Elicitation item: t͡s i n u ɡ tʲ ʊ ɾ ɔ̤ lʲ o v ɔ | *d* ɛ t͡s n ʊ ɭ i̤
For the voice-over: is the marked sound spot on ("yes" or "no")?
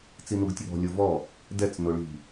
yes